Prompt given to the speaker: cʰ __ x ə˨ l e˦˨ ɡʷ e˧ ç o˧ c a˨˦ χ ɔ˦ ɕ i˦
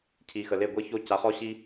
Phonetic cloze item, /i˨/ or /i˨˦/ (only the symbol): i˨